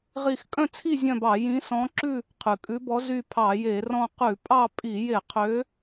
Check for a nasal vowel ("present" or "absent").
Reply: present